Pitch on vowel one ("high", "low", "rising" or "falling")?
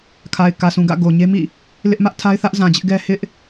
low